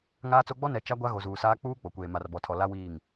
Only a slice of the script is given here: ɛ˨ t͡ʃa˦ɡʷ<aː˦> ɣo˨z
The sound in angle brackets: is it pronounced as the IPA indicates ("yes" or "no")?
no